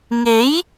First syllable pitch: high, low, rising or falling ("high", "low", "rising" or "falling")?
rising